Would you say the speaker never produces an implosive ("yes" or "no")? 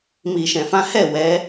yes